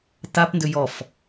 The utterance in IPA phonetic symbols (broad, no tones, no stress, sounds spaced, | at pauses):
t a p n d ʏ j ɔ f